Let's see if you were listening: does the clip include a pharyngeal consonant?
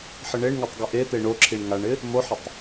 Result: yes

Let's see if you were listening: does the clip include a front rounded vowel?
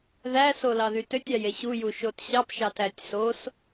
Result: yes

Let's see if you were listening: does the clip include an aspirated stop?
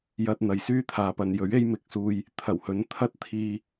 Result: yes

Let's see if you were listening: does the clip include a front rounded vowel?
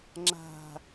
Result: no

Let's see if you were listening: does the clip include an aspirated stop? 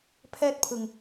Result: yes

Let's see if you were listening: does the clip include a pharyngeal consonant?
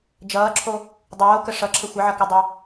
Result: yes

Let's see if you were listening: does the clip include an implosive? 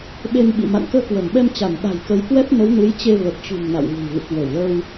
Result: yes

